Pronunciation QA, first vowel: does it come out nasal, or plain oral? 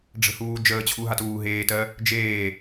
oral